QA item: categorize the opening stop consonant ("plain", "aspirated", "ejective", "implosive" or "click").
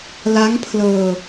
aspirated